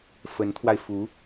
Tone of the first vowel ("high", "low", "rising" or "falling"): rising